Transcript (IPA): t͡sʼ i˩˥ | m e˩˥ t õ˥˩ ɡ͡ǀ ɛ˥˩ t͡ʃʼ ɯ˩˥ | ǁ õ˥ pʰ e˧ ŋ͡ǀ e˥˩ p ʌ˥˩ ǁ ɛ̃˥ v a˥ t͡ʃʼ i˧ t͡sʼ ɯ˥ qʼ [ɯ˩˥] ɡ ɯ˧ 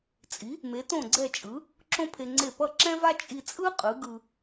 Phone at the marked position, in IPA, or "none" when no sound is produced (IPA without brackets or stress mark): ɯ˩˥